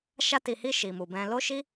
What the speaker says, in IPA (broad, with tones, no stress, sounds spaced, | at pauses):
ʃ a˧ t i˨ h i˧ ʃ i˨ m u˨ b ɛ̃˧ l o˦ ʃ i˦